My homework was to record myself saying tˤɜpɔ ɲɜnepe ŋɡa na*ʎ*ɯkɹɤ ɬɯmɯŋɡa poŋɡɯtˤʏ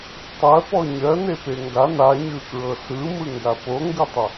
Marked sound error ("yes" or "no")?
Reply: yes